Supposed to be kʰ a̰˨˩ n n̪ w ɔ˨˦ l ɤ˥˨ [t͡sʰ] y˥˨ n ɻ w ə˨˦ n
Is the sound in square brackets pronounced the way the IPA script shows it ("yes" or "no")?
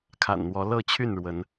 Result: no